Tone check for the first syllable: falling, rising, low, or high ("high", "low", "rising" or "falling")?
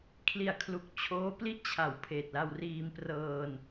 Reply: low